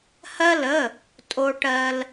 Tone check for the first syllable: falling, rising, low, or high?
high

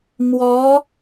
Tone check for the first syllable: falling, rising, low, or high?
rising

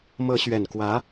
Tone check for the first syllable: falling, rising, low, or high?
rising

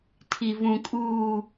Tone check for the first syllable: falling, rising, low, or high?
low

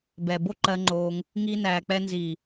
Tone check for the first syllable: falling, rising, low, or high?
low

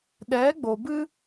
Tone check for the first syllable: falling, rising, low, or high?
rising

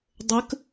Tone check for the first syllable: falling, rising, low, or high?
rising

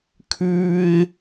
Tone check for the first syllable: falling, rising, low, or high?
high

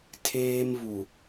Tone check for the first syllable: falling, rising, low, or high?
high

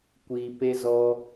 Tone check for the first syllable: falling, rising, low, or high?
low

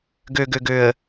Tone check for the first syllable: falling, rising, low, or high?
low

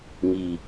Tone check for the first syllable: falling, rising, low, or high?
low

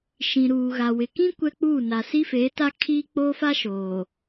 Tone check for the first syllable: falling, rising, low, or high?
low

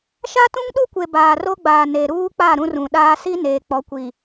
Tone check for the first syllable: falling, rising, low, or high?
high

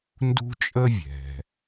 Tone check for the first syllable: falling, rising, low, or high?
high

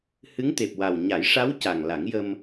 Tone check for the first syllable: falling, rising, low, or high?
rising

